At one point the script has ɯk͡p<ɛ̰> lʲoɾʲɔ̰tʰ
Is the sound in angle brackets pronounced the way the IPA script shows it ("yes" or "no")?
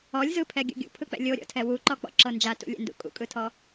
yes